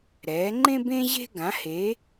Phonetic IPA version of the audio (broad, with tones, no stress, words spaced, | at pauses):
ɾɛː˩˧ŋ͡ǃẽ˦b ẽ˦ʑe̤˦ ɡã˩˧he˩˧